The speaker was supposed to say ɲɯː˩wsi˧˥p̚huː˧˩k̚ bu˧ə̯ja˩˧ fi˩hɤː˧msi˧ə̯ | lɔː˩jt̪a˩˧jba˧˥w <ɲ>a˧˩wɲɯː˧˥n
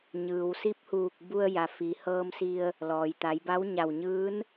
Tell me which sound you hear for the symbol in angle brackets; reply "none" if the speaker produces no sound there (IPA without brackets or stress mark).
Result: ɲ